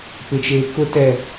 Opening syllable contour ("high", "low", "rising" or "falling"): low